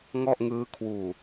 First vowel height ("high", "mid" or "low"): mid